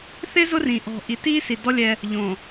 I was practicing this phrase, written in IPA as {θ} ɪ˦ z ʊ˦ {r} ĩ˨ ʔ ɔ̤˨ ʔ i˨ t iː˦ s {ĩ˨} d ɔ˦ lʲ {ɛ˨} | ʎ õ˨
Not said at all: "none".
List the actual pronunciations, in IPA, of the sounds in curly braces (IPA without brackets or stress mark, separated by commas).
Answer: θ, r, i˨, ɛ˦